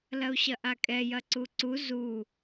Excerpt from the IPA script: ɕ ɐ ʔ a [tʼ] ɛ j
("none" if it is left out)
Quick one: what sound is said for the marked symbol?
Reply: kʼ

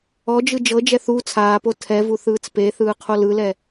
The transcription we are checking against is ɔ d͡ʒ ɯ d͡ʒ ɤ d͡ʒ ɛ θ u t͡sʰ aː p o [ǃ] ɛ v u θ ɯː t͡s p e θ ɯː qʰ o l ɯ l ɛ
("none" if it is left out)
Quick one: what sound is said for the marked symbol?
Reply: tʰ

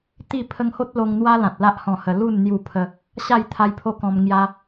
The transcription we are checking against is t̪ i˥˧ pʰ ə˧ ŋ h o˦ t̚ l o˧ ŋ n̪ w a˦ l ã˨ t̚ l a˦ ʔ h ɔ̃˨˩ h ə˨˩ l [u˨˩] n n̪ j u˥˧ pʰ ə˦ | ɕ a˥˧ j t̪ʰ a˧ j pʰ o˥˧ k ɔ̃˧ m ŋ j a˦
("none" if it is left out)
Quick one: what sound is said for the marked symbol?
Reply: u˥˧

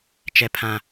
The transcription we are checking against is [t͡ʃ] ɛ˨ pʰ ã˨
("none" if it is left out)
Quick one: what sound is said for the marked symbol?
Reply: t͡ʃ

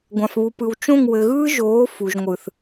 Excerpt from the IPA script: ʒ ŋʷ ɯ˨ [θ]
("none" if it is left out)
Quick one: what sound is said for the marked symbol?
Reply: θ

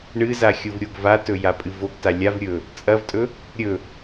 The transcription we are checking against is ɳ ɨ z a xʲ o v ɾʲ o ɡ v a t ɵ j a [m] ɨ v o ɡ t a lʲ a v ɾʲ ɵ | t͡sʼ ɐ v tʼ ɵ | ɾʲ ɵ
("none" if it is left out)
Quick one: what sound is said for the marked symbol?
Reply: pʼ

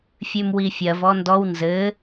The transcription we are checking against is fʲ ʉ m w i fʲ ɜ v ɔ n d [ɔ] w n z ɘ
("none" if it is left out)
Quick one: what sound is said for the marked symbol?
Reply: ɔ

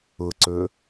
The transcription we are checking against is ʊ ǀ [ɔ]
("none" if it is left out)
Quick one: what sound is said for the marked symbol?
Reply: ɵ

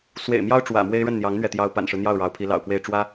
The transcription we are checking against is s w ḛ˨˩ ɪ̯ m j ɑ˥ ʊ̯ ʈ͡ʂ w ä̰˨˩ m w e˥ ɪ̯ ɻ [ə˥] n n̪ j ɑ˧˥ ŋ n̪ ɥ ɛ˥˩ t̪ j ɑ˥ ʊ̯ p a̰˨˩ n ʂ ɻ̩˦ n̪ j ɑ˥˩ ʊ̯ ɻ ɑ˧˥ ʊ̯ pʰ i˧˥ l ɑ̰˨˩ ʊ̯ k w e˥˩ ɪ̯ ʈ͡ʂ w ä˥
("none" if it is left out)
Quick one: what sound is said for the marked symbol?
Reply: ə˥˩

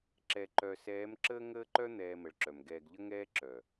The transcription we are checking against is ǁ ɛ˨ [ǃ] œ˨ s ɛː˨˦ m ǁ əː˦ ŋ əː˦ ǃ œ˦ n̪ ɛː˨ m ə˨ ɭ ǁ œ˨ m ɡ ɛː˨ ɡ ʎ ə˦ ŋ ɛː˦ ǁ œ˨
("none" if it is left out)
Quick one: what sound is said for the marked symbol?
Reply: ǃ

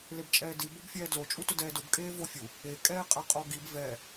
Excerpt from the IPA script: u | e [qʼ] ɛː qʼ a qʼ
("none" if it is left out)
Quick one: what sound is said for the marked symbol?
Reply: kʼ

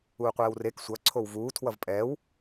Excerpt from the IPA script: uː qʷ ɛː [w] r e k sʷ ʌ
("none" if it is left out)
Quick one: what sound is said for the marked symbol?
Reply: w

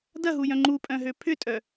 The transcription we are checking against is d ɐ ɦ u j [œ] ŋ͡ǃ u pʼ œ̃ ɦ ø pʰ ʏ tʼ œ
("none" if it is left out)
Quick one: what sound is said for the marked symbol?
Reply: œ̃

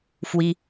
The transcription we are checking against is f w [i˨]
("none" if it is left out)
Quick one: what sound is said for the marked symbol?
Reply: i˨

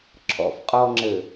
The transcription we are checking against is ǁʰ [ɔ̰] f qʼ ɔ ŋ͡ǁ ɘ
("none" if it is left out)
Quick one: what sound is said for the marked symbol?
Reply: ɔ̰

